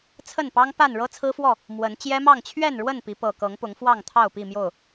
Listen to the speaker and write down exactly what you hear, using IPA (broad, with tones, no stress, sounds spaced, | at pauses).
t͡sʰ ə˥˨ n p ɑ˦ ŋ p a˥˨ n ɻ ɤ˦ t͡sʰ ɹ̩˦ f w ɔ˥˨ | m w ə˨˦ n t͡ɕ j ɛ˦ m ɑ˥˨ ŋ t͡ɕʰ ɥ ɛ˥˨ n ɻ w ə˥˨ n p i˨˦ p ɤ˨˩ k ɤ˨˦ ŋ p ʊ˨˦ ŋ f w ɑ˥˨ ŋ t̪ʰ ɑ˥˨ ʊ̯ p i˥˨ m j o˥˨ ʊ̯